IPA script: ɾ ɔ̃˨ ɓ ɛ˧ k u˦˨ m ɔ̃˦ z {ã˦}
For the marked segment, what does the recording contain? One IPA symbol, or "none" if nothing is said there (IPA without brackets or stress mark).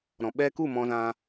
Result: ã˦